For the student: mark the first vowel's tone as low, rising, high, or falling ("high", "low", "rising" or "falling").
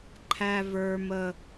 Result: high